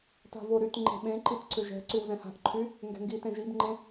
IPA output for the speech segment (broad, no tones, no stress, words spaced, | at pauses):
ta̤voɾyt ŋ͡ǃe̤ɓẽǃitǀʏ ʒɛ̤ ǀywzɛ̃ha̤ʔǃʰy | ŋɡɛ̤ŋɡi tẽʒibŋ͡ǃẽ